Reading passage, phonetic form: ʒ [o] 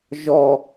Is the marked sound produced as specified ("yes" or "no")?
no